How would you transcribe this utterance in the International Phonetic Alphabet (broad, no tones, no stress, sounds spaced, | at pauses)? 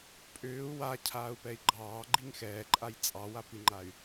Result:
pʼ ʏː u̯ w a cʰ aː u̯ p ɛ i̯ ɡ͡ǃ ɑː ɡ͡ǃ i ŋ x ɛː ǃʼ a j t͡sʼ ɑ w a p i ŋ͡ǃ a y̯